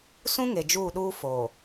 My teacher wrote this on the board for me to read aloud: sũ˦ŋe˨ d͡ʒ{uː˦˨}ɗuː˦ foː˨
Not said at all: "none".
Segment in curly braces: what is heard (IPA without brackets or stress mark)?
uː˦˨